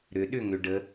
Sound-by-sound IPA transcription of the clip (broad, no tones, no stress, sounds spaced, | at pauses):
ɾ ʏ ɗ ʏ ŋ ʏ ɖ ə